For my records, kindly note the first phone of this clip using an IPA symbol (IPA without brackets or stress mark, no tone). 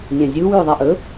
nʲ